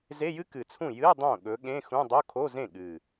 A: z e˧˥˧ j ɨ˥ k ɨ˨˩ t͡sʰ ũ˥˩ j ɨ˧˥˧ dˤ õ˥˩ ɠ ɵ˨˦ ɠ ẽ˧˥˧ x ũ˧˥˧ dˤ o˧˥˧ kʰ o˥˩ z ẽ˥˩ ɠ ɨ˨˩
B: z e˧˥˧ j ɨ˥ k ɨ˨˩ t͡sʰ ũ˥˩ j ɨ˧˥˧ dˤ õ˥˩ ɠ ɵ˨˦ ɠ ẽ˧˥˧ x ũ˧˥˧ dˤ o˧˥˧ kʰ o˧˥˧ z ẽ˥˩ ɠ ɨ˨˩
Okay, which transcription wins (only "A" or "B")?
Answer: B